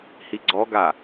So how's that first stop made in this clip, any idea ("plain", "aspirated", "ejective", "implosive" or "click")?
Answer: click